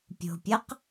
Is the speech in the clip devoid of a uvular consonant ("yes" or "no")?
no